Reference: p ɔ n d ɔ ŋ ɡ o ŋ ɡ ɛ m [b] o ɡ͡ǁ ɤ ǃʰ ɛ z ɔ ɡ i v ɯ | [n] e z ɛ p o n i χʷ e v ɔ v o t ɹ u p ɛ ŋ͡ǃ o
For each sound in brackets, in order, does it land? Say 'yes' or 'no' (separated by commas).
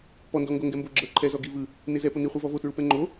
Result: yes, yes